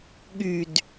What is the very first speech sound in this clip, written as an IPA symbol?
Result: ɠ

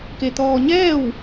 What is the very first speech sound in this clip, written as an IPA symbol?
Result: k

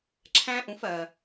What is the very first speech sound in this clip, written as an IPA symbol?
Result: ǁʰ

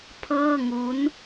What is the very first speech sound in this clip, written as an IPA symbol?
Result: pʰ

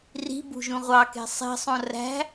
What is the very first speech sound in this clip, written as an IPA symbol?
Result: r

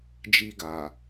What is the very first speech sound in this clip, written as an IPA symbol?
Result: d͡ʒ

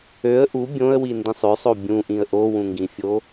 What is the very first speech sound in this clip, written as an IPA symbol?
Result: ø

